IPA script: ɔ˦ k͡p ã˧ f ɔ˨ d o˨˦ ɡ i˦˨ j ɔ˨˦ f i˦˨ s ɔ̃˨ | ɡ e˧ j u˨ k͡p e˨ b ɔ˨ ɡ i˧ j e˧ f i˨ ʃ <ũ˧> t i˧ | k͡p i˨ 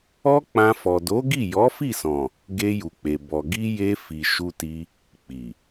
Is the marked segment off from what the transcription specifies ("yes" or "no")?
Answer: yes